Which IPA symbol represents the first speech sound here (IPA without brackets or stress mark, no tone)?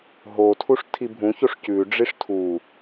ɦ